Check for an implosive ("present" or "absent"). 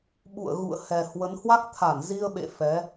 present